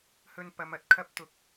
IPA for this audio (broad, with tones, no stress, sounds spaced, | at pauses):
h ɵ˨ n p ɐ˨˧ m ɐ˨˥ t̚ kʰ ɐ˥ p̚ t̪ ʊ˨˥ k̚